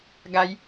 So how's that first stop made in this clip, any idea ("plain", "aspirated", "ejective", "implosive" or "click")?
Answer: plain